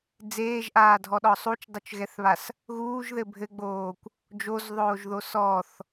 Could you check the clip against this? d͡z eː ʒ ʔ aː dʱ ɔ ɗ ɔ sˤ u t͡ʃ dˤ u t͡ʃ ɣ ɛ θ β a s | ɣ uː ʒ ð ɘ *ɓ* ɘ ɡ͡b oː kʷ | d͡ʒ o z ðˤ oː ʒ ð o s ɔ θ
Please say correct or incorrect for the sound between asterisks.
incorrect: bʱ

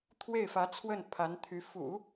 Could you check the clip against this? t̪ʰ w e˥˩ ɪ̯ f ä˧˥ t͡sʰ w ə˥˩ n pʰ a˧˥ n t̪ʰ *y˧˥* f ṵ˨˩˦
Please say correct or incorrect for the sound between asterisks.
correct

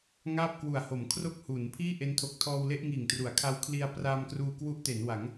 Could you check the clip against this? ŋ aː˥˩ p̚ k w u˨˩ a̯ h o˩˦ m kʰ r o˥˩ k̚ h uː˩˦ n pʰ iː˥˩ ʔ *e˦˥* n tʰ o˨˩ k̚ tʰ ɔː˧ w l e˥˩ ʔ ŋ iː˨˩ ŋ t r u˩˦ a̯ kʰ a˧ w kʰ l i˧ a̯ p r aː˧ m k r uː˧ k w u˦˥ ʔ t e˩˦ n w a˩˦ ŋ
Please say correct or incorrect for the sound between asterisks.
correct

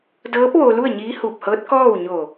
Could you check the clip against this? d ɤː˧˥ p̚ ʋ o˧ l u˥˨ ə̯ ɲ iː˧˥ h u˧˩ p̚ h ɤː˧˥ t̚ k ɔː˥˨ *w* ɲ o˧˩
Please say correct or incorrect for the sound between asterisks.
correct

